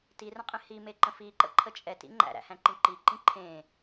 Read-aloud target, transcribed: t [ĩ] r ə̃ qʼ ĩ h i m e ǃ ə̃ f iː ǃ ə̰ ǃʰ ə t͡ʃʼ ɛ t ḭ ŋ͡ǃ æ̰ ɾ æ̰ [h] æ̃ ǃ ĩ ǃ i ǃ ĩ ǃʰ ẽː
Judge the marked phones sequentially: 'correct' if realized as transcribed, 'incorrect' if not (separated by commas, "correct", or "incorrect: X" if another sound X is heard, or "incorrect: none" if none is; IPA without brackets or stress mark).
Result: incorrect: i, correct